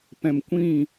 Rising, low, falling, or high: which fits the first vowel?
low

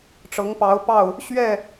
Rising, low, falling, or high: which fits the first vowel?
rising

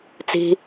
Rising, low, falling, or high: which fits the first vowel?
low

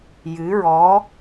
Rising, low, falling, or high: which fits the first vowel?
rising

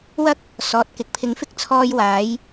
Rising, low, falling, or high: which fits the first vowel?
high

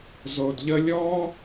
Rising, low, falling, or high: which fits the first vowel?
low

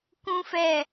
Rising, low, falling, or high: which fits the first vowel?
high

